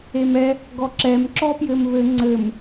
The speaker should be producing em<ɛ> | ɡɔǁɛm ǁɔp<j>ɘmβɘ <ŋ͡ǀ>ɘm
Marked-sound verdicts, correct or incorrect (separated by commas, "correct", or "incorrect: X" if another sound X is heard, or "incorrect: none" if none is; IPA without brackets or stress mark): correct, correct, correct